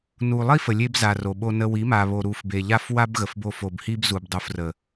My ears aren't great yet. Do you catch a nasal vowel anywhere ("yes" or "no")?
no